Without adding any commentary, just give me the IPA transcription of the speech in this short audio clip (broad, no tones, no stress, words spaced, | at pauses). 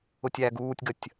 ʊtʲæːɡuːtʲɡətʲ